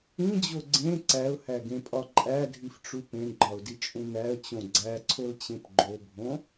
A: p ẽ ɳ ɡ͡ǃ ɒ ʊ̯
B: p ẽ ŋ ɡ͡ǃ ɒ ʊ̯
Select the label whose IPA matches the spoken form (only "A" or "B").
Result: A